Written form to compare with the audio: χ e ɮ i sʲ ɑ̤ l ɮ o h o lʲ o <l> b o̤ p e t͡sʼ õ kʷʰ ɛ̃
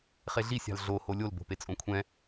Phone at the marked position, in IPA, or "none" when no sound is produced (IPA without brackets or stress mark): l